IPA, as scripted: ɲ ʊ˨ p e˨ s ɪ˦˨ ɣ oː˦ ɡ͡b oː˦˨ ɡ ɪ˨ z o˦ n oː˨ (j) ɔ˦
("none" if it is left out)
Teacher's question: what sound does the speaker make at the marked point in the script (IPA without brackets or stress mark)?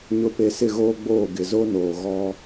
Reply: ɣ